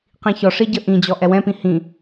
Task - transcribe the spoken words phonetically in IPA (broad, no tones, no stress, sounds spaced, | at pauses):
q ĩ ç ɔ ʂ i ɟ ə ʔ ĩ d͡ʑ ɔ ʔ ɛ w ɛ̃ p ĩ h ĩ